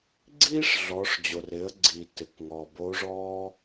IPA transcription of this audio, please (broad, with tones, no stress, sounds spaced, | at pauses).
ɡ͡ǀ iː˥ ʂ ɮ ɔ˩˧ ʂ d͡ʑ o˩ r ɪ˩˧ ə̯ ɡ͡ǀ i˩ t ɪ˩ k ŋ ɔ˩ b o˧˥ ʐ ɔː˥